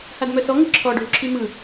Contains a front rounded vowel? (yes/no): yes